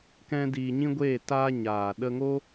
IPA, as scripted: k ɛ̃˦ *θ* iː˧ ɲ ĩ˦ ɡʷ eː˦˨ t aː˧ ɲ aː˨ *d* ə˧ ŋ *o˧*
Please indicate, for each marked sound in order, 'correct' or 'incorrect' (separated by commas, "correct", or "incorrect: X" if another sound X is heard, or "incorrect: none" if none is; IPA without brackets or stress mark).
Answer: incorrect: d, incorrect: ɗ, incorrect: o˦